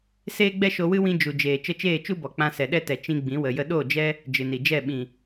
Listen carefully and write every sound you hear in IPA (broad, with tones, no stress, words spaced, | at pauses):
seː˦ɡ͡bɛ˦ʃo˧wɨ˦ wĩ˦ d͡ʒu˨d͡ʒeː˨ t͡ʃə˧t͡ʃeː˦˨t͡ʃu˦bɔ˨ k͡pã˧sɛ˨ɗɛ˦tɛ˨ t͡ʃĩ˧ ɡ͡bĩ˨˦ wə˨jə˧ ɗo˦˨d͡ʒɛ˦ | d͡ʒɨ˨ni˨d͡ʒɛ˦˨ ɓĩ˨